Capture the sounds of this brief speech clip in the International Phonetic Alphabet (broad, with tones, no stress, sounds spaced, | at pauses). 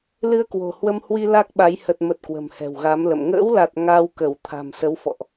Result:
l ɨ˧ ə̯ k w o̤˨˩ h w ə˧ m h w i˧ l a˦˥ k̚ ɓ a˨˦ j h ə˨˩ t̚ m ə˨˩ t̚ k w ə̤˨˩ m h ɛ̤˨˩ w ɣ a˨˦ m l ə̰˧˨ m ŋ ə̰ː˧˥ w l a˨˩ t̚ ŋ a˧ w k ə˧˩ w t̪ʰ a̤˨˩ m s ə˨˦ w f ɔ̰˧˨ ʔ